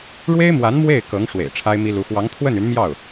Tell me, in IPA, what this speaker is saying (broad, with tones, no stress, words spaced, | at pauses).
ɻwe˥ɪ̯mwa˧˥n mwe˥˩ɪ̯ kɤ˧˥ŋʂwḛ˨˩ɪ̯ ʈ͡ʂʰa˥ɪ̯mi˥lu˧˥ xwɑ˧˥ŋt̪ʰwə˥˩n y˧˥nmjɑ˥˩ʊ̯